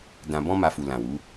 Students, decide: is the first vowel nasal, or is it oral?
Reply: nasal